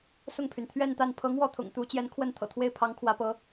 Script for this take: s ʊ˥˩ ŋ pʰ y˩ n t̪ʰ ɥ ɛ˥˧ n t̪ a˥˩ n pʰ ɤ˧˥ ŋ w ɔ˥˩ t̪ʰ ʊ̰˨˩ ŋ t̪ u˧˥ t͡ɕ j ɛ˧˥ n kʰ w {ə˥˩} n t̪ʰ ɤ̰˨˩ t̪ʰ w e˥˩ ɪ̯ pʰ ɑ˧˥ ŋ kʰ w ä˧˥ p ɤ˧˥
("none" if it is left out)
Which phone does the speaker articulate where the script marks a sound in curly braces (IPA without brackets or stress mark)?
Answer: ə˥˩